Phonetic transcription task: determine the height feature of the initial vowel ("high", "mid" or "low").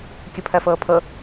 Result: mid